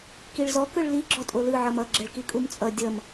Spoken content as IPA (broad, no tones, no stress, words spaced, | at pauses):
kiɭzɔ kɯɭli ɡ͡ǁɔtʼolɯ ʕʌmʌ ɡ͡ǁɛɭkikʼumt͡sʼʌ dʲʌm